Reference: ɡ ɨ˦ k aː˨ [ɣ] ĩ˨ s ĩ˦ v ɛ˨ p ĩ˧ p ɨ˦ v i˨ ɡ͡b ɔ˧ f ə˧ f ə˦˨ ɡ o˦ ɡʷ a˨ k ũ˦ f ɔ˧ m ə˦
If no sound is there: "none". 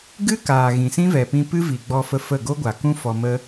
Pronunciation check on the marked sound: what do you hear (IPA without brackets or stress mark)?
ɣ